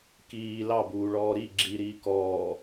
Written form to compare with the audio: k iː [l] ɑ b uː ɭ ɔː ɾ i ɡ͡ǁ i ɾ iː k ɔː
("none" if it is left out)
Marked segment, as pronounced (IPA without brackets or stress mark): l